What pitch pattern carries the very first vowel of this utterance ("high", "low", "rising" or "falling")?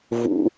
low